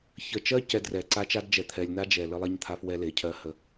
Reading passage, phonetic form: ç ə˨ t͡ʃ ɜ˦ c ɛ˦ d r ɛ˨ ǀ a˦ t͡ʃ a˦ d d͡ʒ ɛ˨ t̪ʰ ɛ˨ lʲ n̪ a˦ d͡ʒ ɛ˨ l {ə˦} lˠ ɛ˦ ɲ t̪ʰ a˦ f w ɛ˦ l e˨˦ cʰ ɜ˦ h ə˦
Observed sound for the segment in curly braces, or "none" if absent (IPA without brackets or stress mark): ə˦